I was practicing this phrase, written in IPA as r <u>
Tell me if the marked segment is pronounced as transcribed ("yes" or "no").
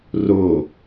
no